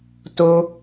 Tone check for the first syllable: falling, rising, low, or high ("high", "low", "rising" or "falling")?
high